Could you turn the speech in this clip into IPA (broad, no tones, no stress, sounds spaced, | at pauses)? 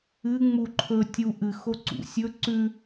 ɨ ŋ͡m u ǃʰ ɵ tʲ u ʔ ɨ x o ǀ ṵ sʲ ɵ ǀ ʉ